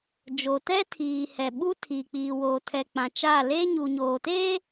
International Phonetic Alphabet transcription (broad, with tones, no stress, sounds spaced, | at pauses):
d͡ʒ o˨ t ɛ˦ tʰ iː˨ h ɛ˨ ɓ u˦ tʰ iː˨ k͡p iː˨ w oː˨ tʰ ɛ˨ k͡p ã˨ t͡ʃ aː˦˨ l eː˦ ɲ u˨ ɲ oː˨ t eː˦